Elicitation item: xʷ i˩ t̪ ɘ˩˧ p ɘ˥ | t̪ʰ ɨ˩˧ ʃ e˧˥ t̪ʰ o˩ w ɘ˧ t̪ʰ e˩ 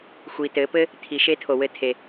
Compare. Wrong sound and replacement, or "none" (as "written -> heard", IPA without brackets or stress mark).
ɨ˩˧ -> i˩˧